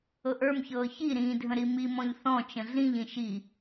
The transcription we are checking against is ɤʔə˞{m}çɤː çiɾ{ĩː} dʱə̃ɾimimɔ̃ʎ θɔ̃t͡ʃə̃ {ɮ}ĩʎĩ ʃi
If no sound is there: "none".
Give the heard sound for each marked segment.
m, ĩː, ɮ

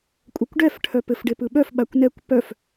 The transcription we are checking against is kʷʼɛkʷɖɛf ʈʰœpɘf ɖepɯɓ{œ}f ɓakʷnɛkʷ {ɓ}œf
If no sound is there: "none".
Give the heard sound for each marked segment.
œ, p

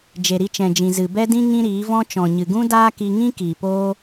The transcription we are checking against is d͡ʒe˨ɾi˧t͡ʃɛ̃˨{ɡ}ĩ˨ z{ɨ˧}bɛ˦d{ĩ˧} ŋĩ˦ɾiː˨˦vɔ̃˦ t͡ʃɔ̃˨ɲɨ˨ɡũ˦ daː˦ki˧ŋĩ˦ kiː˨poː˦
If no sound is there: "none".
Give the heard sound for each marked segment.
d͡ʒ, ɨ˨, ĩ˦

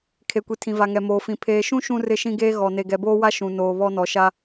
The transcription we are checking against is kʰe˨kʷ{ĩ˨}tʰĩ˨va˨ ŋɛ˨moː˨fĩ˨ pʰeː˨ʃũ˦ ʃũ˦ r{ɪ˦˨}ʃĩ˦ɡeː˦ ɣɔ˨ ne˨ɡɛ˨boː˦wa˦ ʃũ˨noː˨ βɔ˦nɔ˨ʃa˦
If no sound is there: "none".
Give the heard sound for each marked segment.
i˨, ɪ˦˨

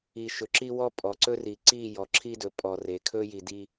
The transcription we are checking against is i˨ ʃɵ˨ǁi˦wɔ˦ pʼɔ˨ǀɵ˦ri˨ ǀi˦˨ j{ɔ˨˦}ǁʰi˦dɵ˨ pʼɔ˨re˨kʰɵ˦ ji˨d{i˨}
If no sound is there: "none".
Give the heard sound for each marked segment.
ɔ˨, i˦

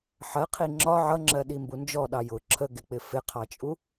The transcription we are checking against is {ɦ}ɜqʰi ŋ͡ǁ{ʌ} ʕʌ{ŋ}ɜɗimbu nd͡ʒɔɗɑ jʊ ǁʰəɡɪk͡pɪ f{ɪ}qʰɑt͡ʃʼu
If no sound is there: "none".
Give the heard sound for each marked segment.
ħ, ɒ, ŋ͡ǁ, ɪ

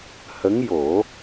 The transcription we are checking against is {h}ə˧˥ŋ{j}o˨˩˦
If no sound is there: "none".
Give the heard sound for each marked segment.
h, j

